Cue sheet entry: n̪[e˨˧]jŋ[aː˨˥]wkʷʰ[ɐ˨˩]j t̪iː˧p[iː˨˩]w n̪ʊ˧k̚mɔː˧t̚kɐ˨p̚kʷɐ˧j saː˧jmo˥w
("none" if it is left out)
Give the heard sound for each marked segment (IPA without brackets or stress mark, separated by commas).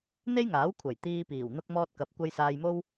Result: e˥, aː˨˥, ɐ˨˩, iː˨˩